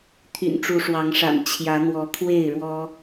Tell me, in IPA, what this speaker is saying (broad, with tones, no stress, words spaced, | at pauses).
t̪ʰy̰˨˩nʈ͡ʂu˨˦ʂwɑ˨˦ŋʂa̰˨˩n t͡ɕʰjä˨˦n̪wɔ˨˦ kʰwe˥˨ɪ̯ɻwɔ˦